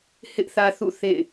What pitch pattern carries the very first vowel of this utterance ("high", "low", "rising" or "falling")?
high